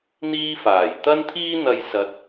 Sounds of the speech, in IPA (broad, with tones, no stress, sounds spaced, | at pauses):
n̪ iː˥ f aː˨˩ j t̪ ɐ˥ n t̪ʰ iː˥ n̪ ɐ˧ j s ɐ˧ t̚